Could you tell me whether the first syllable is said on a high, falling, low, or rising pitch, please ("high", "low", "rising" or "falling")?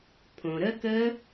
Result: low